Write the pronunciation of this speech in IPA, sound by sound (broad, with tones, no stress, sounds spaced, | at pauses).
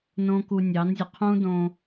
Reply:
n õ˦ k u˧ nʲ ɑ˨˦ n zʲ ə˨ qʰ ũ˦ d õ˧